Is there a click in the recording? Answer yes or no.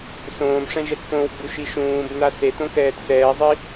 no